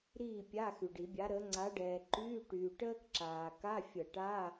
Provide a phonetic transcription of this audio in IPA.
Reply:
ɾ iː˥˨ pʲ a˧˥˧ x y˨ ɖ i˨˩˦ bʲ a˨˥ ɾ ə˨˥ ŋ͡ǀ a˨˥ ɖ ɛː˨ ǃ yː˧˥˧ ʈ yː˨ ʈ əː˥ k ǁ aː˨ k a˧˥˧ fʲ ə˨˩˦ ʈ a˧˥˧

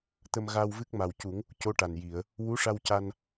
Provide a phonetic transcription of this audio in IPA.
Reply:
t̪ ə˧ m ɣ a˧ w v ɨ˦˥ k̚ m a˨˩ w c u˨˩˦ ŋ | c o˧˥ ʈ a˨˩ n j i˨˩˨ ə̯ | w u˧˥ ʂ a˧ w c a˧ n

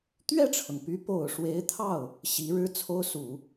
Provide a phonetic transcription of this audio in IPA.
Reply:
t̪ ɥ ɛ˥˩ ʈ͡ʂʰ ɤ˩ ŋ p y˧˥ p o˨˩ ʊ̯ ʂ w e˧˥ ɪ̯ t̪ʰ ɑ˥˩ ʊ̯ | ɕ i˧˥ ɻ ɻ̩˥ t͡sʰ o˥ ʊ̯ s u˨˩˦

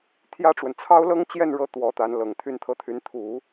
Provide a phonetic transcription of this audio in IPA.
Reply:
t̪ʰ j ä˥ ʈ͡ʂ w ə˨ n t͡sʰ ɑ˥ ʊ̯ l ɤ˥ ŋ t͡ɕ j ɛ˥˧ n ɻ ɤ˥˩ t̪ w ɔ˧˥ t̪ a˧˥ n l ɤ˨˩ ŋ t̪ʰ y˥˧ n t̪ʰ ɤ˥˩ t̪ʰ y˧˥ n t̪ʰ u˨˩˦

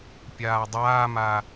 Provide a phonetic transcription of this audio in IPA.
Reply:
pʲ aː dˤ aː m a

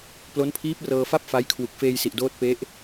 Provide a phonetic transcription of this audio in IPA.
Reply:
p l o˦˥ n pʰ iː˦˥ p̚ r ɤː˧ f a˥˩ p̚ f a˦˥ j kʰ w u˨˩ k̚ f eː˧ j s i˨˩ ʔ d oː˦˥ t̚ p e˦˥ ʔ

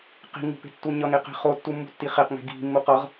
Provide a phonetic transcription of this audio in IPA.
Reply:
q i̤ ŋ ṳ p e̤ tː u ɲ ʌ ŋ e q e̤ χ o tː u mː ṳ tː i χ e q ŋ e̤ ɡ i̤ mː u q ʌ ʁ

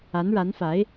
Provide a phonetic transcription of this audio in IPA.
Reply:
a˧˥ n ɻ a˧˥ n f a˧˥ ɪ̯

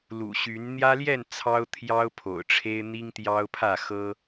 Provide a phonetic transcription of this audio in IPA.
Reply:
l ṵ˨˩ ɕ y˨˦ n n̪ j ä˦ l j ɛ˥˨ n t͡sʰ ɑ˦ ʊ̯ t̪ʰ j ɑ˦ ʊ̯ pʰ o̰˨˩ ʊ̯ ʈ͡ʂʰ e˦ ɪ̯ n̪ i˦ ŋ t̪ j ɑ˦ ʊ̯ pʰ ä˥˨ x ɤ˦

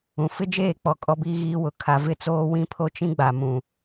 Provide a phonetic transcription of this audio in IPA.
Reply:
ũ˨ f ɪ˦ d͡ʒ eː˦˨ k͡p ɔ˨ kʼ ɔ˦ b iː˦ ɣ iː˦ w ʊ˨ kʰ a˨ v ɪ˦˨ t͡s oː˦ w ĩ˦ pʰ o˦ t͡ʃ ĩ˦ ɡ͡b a˨ m ũ˨

